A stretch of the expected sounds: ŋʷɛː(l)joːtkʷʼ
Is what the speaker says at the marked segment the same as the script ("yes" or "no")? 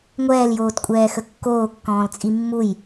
yes